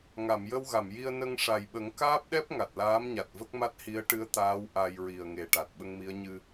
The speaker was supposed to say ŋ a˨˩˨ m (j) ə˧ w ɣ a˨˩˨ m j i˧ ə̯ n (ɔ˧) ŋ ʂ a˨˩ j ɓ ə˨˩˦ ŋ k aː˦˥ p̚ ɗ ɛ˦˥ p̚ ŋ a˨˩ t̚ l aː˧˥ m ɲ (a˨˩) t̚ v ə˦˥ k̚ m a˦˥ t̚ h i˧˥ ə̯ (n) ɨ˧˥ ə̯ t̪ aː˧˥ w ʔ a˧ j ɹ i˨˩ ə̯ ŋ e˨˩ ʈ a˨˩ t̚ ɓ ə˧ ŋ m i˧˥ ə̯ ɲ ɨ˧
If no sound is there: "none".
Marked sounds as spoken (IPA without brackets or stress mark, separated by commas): j, ə˧, a˨˩, ʈ